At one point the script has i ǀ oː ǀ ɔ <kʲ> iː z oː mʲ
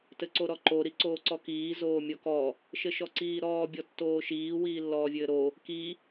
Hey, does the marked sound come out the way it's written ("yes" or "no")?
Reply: no